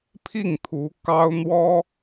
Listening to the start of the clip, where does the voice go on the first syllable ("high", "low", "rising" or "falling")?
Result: falling